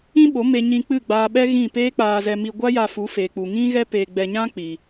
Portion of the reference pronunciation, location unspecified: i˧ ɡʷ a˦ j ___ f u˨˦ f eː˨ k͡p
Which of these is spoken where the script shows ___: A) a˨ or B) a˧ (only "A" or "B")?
B